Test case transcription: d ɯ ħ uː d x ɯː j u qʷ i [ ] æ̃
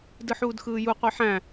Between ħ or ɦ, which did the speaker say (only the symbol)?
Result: ħ